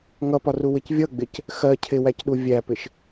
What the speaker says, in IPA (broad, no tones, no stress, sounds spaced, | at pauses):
ŋ ʌ p ɒ r u w ɪ c vʲ ʌ ɡ͡b ɪ c | x ɜ cʰ ɪ w æ c ɗ u vʲ æ p ɪ ʃ